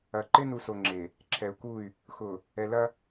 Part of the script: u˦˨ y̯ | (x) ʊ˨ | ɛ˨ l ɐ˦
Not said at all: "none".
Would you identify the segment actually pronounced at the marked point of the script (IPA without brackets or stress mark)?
x